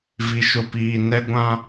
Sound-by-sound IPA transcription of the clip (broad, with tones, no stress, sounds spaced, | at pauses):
v i˨ ʃ ʊ˨ p iː˨ n ɛ˦ ɡʷ ã˦